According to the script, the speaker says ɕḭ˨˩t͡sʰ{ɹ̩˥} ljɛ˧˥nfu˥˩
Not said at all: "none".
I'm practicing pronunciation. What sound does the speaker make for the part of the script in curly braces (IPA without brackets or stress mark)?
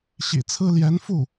ɹ̩˥